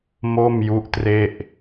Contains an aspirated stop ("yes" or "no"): no